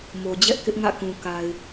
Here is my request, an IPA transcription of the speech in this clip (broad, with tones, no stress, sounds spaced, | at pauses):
m o˨ d͡ʑ ɛ˦ ʔ k ɪ˦ ʔ ŋ ä̰˦˨ k ũ˨ k a˨ ɪ̯